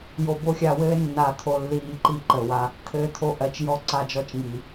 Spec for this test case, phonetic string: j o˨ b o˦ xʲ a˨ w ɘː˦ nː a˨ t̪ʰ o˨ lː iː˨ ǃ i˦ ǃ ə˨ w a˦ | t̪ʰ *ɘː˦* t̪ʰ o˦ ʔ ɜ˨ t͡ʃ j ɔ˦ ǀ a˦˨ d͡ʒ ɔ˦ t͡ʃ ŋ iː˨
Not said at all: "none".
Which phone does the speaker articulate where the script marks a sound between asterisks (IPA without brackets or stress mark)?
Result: ɘː˦